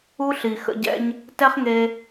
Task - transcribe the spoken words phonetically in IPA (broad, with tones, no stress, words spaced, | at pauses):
u˦ɬi˨xə̰˧ɟɛ̰˦ɲ | tɛ˦χŋe˧